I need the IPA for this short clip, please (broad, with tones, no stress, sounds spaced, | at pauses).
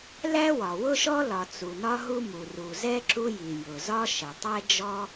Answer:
l æ˥ w ɒ˩ w ʊ˥ ʃ ɔ˥ l ɒ˩ t͡s u˩ n ɒ˥ ɦ u˥ m u˩ r u˩ z ɛ˥ ǁ u˥ j i˩ j ʊ˩ z ɒ˥ ʃ ə˩ tˤ ɛ˥ d͡ʒ ɔ˥